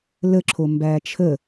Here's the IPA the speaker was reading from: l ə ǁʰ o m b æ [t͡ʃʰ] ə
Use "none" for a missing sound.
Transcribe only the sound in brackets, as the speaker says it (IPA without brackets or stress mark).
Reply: t͡ʃʰ